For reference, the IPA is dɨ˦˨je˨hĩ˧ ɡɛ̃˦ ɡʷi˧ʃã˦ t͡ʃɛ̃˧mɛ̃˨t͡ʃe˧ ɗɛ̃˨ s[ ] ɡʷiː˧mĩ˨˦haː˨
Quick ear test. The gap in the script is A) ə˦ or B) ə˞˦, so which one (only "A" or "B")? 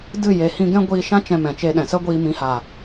A